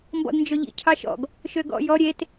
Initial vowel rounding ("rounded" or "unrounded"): rounded